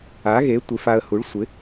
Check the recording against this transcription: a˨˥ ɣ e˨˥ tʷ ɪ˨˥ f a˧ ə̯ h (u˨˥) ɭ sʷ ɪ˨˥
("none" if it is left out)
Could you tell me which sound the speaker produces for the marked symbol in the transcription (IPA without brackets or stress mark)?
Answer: u˨˥